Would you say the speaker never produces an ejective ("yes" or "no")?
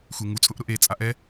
no